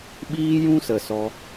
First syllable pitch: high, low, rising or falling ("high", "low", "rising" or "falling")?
high